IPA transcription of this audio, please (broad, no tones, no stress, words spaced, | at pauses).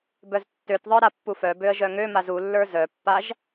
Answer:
bœztːøtðˤə˞ ɾapːufœbøə̯ ʒœŋømaz ulːə˞ zœpːaʒ